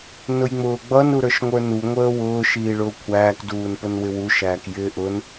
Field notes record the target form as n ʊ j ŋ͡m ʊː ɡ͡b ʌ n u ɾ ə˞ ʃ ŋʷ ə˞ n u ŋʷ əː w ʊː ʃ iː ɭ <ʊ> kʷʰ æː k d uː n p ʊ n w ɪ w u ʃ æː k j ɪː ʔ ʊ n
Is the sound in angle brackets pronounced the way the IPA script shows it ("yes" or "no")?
no